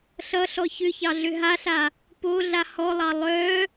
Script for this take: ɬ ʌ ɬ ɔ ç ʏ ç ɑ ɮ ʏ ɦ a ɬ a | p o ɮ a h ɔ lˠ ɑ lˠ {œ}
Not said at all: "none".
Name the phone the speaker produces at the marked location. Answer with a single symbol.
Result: œ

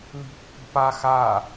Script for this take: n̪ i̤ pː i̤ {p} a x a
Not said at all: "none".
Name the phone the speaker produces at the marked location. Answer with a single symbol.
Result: p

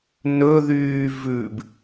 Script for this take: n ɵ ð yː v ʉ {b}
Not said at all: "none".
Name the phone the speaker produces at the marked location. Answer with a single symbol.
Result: b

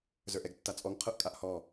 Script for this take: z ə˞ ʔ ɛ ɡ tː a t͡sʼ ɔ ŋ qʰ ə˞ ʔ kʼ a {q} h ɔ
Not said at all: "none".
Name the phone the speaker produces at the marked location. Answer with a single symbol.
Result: ʔ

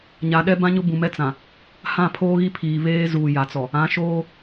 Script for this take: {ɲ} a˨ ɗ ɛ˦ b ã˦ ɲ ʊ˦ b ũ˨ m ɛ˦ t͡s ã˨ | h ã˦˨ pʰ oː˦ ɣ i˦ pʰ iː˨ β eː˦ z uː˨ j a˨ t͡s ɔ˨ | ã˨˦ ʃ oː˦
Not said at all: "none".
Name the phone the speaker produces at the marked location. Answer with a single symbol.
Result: ɲ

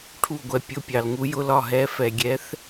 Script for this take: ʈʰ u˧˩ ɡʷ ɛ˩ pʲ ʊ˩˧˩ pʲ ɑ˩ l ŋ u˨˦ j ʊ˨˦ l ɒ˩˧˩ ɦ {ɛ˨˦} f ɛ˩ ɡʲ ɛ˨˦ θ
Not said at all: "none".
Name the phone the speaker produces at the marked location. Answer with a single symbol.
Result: ɛ˨˦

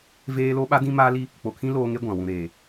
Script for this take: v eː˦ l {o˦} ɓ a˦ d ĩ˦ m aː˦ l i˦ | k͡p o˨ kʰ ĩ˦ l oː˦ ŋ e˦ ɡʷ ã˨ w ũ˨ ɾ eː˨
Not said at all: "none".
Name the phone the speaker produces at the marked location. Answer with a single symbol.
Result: o˦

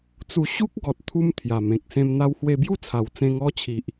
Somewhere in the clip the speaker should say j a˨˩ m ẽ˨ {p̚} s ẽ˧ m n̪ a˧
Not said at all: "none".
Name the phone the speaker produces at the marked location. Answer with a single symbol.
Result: k̚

